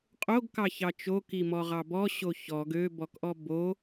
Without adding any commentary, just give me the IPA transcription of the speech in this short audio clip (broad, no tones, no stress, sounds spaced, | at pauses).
qʼ o ɡ k ɑ ç ɑ t͡ʃ o k i m ɔ ʁ ɑ b ɔ ɕ o ç ɔ ɡ ø b ɔ k ʔ ɔ b o